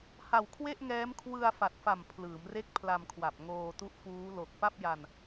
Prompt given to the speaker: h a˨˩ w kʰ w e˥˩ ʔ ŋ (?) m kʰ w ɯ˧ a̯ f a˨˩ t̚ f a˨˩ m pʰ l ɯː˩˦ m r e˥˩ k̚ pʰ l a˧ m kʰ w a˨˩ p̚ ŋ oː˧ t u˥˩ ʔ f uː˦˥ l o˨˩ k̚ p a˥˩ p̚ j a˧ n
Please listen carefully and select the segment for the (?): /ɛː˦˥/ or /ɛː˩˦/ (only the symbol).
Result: ɛː˦˥